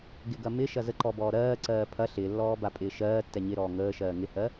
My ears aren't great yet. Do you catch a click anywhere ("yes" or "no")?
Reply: yes